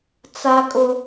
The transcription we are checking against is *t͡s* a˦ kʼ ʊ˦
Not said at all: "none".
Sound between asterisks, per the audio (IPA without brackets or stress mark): t͡s